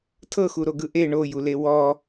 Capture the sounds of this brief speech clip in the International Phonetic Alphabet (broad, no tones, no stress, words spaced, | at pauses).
tʰɤxuɾoɡɯ ʔe ɳojule wɔ